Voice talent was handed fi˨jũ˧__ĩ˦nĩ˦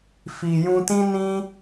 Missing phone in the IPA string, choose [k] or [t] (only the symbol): t